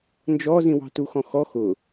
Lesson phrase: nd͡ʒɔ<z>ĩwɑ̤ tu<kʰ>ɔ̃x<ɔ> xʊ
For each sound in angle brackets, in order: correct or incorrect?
correct, incorrect, correct

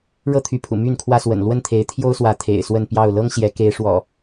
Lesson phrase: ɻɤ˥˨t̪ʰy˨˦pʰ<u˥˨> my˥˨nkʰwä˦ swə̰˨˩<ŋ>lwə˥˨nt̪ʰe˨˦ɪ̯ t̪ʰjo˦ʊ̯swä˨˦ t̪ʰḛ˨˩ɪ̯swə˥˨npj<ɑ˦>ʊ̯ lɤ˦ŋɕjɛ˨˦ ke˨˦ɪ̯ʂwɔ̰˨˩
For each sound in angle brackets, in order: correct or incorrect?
incorrect, incorrect, incorrect

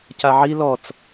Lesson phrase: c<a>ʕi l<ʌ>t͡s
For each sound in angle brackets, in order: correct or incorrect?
correct, incorrect

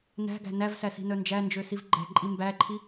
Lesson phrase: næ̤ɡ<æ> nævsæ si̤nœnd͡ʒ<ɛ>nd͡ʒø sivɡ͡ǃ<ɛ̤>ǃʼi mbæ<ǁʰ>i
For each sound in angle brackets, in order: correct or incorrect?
incorrect, incorrect, correct, incorrect

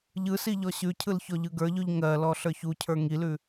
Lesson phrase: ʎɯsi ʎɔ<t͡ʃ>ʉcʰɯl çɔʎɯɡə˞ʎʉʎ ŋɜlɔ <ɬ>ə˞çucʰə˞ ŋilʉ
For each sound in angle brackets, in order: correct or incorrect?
incorrect, correct

